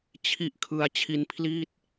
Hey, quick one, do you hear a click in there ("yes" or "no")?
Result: no